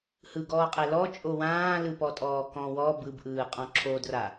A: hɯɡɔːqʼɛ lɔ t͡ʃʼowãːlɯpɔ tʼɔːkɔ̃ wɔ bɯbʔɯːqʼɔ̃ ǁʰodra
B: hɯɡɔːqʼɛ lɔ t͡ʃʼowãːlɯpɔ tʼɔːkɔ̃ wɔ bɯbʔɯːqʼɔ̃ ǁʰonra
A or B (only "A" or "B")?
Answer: A